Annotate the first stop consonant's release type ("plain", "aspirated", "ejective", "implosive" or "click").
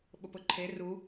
implosive